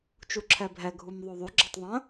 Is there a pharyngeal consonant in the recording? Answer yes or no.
no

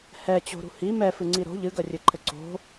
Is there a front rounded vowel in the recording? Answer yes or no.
no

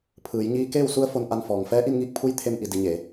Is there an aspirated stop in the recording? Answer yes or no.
yes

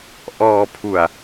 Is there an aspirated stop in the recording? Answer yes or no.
yes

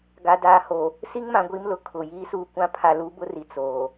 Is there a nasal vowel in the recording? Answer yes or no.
yes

